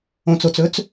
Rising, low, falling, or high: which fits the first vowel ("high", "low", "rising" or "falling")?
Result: low